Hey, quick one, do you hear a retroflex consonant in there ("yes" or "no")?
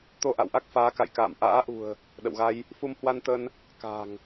no